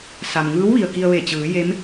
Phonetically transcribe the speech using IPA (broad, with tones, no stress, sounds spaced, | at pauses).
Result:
s a˩ m ŋ ɯː˧˥ w ʋ i˩ ə̯ k i˧ ə̯ ʋ e˧˩ t͡ɕ ɯː˩˧ j e˧˥ m